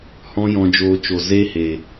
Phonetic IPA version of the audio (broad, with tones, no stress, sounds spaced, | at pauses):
h ɔ̃˦ j ɔ̃˧ d͡ʒ oː˧ t͡ʃ o˨ z e˦ h e˨